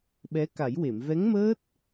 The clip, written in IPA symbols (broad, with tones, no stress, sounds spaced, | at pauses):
ɓ ɛ˧˥ k a˨˩˦ j w e˨˩˨ m v ɛ˧˥ ŋ m əː˦˥ t̚